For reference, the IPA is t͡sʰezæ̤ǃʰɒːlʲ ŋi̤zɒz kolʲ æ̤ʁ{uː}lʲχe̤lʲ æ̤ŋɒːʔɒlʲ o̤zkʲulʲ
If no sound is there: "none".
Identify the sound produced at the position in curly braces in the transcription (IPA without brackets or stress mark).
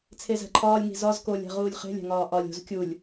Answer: uː